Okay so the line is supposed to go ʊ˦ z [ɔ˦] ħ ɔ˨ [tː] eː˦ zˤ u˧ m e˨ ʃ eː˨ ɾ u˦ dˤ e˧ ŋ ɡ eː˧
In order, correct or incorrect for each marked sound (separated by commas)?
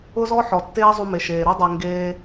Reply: correct, correct